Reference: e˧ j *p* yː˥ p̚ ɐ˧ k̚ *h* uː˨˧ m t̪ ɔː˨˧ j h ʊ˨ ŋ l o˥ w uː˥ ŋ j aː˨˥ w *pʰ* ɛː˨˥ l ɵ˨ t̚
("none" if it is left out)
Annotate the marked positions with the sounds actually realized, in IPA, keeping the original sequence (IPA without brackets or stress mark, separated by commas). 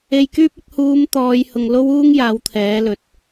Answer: k, h, t̪ʰ